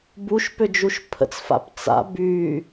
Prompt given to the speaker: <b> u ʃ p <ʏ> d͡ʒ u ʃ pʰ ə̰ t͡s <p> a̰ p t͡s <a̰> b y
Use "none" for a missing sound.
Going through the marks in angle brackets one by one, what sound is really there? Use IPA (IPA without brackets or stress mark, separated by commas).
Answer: b, ʏ, f, a̰